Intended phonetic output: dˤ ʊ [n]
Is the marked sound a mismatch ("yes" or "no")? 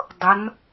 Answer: no